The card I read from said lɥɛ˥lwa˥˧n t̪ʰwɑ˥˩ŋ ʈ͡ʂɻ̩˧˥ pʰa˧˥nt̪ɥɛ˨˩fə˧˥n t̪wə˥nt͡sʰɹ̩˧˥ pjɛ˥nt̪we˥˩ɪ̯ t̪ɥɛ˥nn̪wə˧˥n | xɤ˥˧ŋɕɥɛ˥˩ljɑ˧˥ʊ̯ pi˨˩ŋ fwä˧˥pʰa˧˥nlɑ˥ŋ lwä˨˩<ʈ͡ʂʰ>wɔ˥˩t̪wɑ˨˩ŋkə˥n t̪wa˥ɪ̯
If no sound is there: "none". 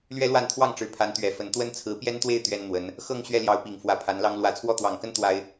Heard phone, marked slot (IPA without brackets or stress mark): t͡sʰ